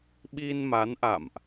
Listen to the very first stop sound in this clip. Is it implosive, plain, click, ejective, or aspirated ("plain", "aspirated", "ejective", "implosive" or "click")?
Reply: implosive